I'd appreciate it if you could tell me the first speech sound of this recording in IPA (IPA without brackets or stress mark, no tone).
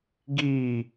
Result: ɡ